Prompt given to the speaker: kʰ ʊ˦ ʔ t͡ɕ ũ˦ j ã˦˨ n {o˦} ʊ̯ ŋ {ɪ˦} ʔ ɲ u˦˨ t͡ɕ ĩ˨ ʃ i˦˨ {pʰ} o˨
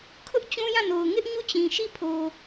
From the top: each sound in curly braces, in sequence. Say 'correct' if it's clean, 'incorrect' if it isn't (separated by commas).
incorrect, correct, correct